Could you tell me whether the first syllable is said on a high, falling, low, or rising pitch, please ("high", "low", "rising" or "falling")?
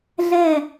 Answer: falling